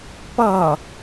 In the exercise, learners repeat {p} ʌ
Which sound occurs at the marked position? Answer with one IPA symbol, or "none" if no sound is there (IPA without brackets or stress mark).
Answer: p